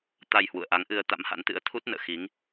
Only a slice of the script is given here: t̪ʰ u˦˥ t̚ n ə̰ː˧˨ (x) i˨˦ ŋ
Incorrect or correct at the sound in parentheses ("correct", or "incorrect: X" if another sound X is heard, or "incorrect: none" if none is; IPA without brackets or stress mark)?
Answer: correct